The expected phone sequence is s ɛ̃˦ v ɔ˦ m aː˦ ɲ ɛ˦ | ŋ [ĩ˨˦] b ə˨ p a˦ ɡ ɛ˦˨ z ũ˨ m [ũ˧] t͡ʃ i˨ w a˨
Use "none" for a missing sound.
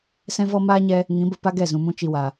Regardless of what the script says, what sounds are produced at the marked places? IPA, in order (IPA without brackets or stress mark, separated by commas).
ĩ˨˦, ũ˧